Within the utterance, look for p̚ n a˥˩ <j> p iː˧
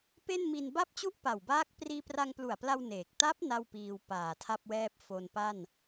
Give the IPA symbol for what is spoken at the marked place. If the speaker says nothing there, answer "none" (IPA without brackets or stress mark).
w